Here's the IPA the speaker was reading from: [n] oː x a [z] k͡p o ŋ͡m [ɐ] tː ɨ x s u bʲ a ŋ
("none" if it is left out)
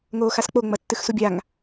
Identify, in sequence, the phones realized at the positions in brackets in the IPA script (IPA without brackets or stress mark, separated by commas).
ŋ, s, ɐ